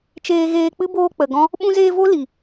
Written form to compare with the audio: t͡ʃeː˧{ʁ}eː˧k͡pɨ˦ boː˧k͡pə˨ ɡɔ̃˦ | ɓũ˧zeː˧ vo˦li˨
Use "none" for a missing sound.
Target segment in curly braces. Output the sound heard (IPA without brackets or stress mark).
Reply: ɣ